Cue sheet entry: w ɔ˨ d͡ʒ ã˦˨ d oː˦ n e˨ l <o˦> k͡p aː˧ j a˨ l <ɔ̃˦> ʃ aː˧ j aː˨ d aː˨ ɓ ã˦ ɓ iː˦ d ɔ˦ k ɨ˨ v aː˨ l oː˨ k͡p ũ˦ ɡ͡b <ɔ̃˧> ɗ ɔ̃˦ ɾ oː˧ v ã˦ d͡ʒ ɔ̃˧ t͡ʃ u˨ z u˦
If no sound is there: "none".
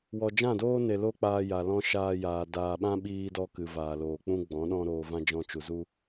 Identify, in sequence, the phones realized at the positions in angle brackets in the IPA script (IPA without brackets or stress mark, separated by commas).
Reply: o˦, ɔ̃˧, ɔ̃˨˦